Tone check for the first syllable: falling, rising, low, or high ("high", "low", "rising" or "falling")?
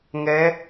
rising